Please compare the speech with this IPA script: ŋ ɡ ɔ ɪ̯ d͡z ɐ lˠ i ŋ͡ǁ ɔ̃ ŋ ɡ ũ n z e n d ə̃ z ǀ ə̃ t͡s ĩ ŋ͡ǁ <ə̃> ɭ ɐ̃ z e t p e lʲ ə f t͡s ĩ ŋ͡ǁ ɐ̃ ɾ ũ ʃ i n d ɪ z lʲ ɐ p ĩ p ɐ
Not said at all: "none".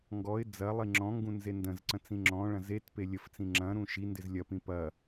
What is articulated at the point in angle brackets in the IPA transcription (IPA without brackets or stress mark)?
ɔ̃